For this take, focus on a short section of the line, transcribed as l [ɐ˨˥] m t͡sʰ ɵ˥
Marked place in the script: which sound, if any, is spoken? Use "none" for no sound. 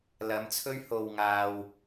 ɐ˨˥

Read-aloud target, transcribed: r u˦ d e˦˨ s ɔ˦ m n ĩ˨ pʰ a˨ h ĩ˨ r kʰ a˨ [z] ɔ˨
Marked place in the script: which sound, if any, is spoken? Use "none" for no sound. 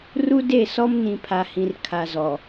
z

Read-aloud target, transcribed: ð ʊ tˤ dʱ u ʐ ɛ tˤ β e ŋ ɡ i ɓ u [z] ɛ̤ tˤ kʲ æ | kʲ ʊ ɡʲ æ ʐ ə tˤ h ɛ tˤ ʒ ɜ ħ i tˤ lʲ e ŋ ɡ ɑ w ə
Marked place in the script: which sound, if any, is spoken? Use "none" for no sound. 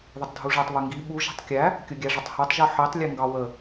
ʒ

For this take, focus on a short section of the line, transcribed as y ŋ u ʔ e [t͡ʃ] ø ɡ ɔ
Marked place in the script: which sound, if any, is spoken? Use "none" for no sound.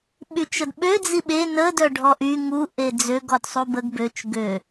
d͡z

